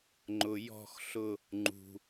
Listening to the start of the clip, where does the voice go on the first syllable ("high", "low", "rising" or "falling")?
low